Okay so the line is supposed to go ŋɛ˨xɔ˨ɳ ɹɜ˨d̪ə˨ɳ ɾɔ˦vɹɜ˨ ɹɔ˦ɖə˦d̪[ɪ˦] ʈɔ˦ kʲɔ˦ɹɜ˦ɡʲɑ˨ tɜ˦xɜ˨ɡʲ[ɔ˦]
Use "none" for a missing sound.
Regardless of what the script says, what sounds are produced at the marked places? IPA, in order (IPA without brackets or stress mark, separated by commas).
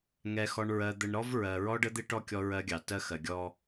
ɪ˦, ɔ˦